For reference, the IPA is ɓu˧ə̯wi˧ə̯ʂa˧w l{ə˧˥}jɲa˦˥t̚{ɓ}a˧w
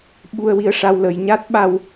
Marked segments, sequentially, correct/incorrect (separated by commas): incorrect, correct